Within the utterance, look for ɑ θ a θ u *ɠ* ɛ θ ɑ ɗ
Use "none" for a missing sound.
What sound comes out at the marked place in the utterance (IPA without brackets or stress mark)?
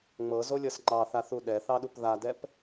ɗ